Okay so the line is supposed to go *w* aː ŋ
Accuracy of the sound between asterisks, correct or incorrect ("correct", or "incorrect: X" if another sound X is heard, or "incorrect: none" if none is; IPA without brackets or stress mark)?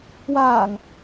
correct